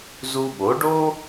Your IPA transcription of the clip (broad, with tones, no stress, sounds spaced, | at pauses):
z u˧ ɓ o˩˥ ɖ o˥